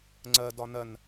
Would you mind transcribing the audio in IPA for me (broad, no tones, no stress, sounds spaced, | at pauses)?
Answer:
ŋ͡ǀ ɜ d ɒ n ɜ n